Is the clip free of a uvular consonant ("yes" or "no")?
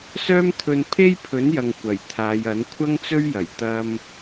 yes